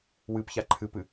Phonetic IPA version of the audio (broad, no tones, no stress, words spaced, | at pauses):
wɨpça ǃʰɨpɨ